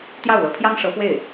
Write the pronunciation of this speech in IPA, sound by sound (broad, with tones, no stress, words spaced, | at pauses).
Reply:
t̪jɑ˥˩ʊ̯lɤ˧˥pʰjɑ˥ŋ ʂɤ˧˥fwe˥˩ɪ̯